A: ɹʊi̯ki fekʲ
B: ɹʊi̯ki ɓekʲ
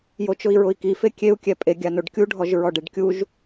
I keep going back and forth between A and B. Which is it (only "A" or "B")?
A